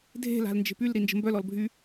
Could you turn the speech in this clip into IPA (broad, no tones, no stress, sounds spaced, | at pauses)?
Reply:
dʱ e̤ l a̤ l n d͡ʒ e̤ p y l ɾ i n d͡ʒ ə̤ m b œ l ɔ l bʱ y